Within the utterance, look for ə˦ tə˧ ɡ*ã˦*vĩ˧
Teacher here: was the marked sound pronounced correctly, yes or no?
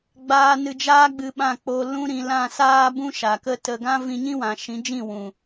yes